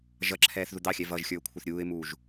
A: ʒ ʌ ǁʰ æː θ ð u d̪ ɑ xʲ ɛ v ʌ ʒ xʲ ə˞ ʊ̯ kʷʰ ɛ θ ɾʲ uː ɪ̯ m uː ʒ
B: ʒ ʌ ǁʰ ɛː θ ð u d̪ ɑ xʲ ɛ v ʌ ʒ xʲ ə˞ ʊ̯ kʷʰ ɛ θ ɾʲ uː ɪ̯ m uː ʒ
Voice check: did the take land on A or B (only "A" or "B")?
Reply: B